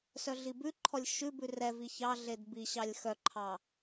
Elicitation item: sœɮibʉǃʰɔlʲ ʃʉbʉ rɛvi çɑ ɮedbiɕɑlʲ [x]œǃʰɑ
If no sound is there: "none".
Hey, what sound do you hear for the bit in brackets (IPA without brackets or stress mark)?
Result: x